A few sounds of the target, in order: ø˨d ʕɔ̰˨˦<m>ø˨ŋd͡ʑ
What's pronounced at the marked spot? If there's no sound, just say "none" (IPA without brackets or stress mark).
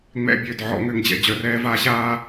ŋ